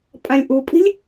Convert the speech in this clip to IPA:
pʼ ã lʲ ʔ u pʼ i̤ lʲ

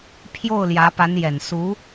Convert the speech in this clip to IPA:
pʰ j o˥˩ ʊ̯ l j ä˧˥ p a˧˥ n j ɛ˨˩ n s u˧˥

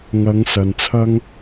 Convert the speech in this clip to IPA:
ŋ ɐ˨˧ ŋ s ɐ˨ n t͡sʰ ɐ˥ ŋ

